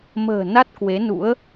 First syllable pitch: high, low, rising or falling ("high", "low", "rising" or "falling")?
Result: low